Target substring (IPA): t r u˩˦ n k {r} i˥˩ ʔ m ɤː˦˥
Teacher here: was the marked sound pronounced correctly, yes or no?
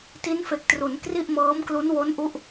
yes